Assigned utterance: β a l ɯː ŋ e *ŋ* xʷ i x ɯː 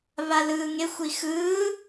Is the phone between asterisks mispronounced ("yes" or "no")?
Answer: yes